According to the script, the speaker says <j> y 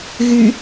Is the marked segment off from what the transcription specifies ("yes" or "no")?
yes